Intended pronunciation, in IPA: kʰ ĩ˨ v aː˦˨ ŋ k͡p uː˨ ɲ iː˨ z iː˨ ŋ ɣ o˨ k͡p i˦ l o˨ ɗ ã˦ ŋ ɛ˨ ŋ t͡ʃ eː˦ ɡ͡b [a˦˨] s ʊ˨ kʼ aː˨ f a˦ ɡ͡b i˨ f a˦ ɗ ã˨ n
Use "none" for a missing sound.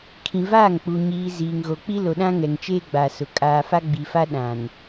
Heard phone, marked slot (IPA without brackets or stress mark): a˨